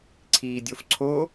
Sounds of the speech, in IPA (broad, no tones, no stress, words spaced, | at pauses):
ǀʰiːdʲofǀʰo